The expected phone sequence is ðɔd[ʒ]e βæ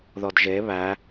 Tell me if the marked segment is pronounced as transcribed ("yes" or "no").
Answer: yes